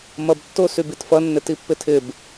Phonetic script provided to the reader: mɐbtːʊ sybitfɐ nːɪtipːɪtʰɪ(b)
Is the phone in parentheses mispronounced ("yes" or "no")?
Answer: no